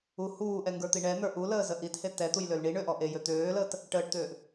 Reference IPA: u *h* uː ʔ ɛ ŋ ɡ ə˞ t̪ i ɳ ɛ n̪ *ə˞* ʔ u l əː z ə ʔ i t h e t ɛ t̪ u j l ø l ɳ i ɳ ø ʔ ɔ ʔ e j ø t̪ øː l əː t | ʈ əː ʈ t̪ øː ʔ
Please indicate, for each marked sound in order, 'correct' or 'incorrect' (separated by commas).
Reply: correct, correct